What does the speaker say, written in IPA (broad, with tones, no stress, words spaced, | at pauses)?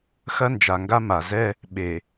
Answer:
xɐ˦nd͡ʒa˨ŋɡa˦ma˨ zɛ˦ | ɓe˨